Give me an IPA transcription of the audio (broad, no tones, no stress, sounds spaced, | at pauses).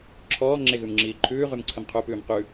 ǁʰ ɔː ŋ͡ǁ e ɣ ʉ m ŋ͡ǁ iː ǃʰ ʉː ʁ ʉ m ǀʰ ə m qʰ u p ʉː m q ʉ